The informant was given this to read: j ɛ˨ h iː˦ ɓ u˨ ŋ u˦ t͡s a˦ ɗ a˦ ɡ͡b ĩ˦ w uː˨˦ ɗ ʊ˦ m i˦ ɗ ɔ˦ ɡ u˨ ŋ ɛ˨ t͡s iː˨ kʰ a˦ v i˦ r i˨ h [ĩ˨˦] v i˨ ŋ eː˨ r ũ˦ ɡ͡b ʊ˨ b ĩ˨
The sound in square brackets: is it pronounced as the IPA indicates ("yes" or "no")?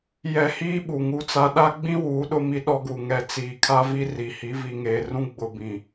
no